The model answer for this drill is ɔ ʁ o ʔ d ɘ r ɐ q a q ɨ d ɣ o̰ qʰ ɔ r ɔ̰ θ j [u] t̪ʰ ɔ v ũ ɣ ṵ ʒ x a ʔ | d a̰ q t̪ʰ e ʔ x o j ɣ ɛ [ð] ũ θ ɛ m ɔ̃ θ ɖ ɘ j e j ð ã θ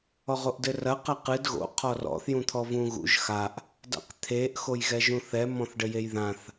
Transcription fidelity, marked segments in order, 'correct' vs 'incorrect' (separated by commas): incorrect, incorrect